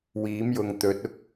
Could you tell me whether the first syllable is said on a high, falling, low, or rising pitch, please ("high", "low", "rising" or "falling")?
rising